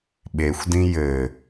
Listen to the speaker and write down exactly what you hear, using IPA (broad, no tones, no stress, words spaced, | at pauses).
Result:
ɓexʷdĩ jɘ